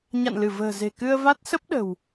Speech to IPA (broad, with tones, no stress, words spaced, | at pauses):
ɲa̰˧˨nlɨ˧˩və̤ː˨˩ze̤˨˩ kɨ˧ə̯va˦˥t̚ sə˦˥p̚ ɗə̤˨˩w